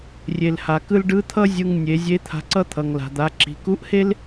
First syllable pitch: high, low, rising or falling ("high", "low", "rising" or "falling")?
low